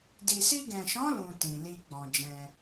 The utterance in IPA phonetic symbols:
d i˨ s i˧ ɡ ɛ̃˨ ʃ ɔ̃˨˦ l ũ˧ t ĩ˨ l i˧ ɡ͡b ɔ̃˨ d͡ʒ ɛ̃˧

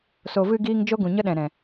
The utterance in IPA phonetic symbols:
s o˨ v ɨ˧ ɡ iː˧ ŋ d͡ʒ o˦ ɡ ũ˨ ɲ ə˦ ɗ ɛ̃˨ ɾ ɛ̃˨

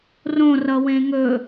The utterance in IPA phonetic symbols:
r õ r ʌ w ẽ ŋ ɵ

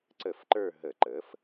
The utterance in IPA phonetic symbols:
ǀ ə˧˩˧ f ǃ ə˞˦˨ ɦ ə˧˩˧ ǃ əː˩˥ f

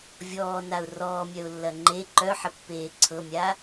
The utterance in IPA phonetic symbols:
vʲ ɔː n a ʊ̯ r ɔː mʲ œ ʊ̯ lː ɐ ŋ͡ǃ e ǃ œ ħ ə pː eː ǀʰ ɤ mʲ a

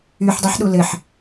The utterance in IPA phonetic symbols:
y ħ dˤ i ħ ɗ u l ɘ ħ

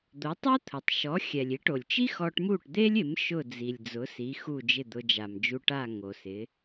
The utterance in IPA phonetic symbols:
d̪ o˩˥ tˤ ɛ˥ t̪ʰ ʊ˩ tˤ ʃ ɔ˩˥ xʲ ɛ˩ lʲ i˩˥ ʈ o˩ lʲ t͡ʃ i˥ x ɔ˧ ʈ m u˥˩ ʈ d̪ e˥ lʲ ɪ˩˥ m ʃ ʊ˥˩ d͡z i˩ lʲ d͡z ʊ˩˥ s i˩˥ x u˥˩ d͡ʒ ɪ˥˩ d̪ ʊ˧ d͡ʒ a˩ m d͡ʒ u˧ ʈ a˥˩ ŋ o˩ s ɪ˩˥

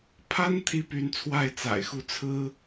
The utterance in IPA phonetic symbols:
pʰ a˥ n t̪ʰ i˥ p y˧˥ n t͡sʰ w a˥˩ ɪ̯ t͡s a̰˨˩ ɪ̯ x u˥˩ t͡sʰ ɹ̩˥

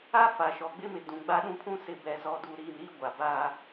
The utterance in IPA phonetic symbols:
a˦ f a˨ ʃ ɔ˨ ɡ͡b ɪ˦ m ɪ˨ d ũ˨ ɡ͡b a˦ ɗ ũ˦ pʰ ũ˦ s ɪ˨ b ɛ˨ z ɔ˨ d uː˨ ɾ iː˨ m ɾ iː˦ ɡʷ a˨ b aː˦

